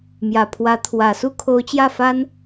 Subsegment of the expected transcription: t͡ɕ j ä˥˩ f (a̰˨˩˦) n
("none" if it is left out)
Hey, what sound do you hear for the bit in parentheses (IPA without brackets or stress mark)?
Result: a˥